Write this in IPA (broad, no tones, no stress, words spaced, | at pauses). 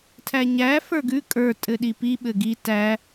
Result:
tʰæɲæ fə˞ɡʉ kʼə˞ tʼɘɗipi ɓɘɡi tæ